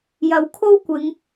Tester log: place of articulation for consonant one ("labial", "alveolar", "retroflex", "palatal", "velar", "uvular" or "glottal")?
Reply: palatal